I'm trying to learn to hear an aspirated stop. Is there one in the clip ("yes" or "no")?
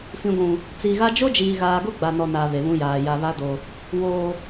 no